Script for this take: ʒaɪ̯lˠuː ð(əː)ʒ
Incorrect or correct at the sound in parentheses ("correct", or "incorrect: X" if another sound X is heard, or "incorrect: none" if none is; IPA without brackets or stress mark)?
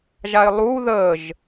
correct